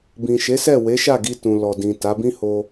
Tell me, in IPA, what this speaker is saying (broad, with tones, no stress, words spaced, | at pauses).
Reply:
bĩ˨ʃe˨˦sɛ˦˨ we˨˦ʃa˦˨ɡi˧ tũ˨lɔ˨dĩ˨ ta˨˦bĩ˦ ho˧